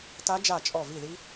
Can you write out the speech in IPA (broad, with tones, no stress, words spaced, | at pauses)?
ta˦˥d͡ʒa˦˨ t͡ʃʼɔ˦˨ vi˦˨ði˦˥